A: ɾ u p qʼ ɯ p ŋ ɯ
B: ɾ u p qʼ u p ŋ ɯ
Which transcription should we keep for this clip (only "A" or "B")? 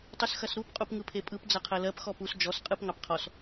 B